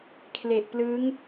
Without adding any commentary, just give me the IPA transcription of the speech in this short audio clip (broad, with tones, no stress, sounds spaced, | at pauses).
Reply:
kʰ l e˨˩ ʔ p l ɯ˦˥ ŋ